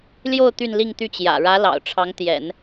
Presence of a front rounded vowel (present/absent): present